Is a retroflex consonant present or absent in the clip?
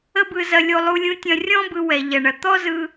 present